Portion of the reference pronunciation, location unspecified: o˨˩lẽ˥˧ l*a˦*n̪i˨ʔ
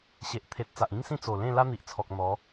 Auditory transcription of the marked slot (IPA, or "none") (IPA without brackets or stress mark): a˦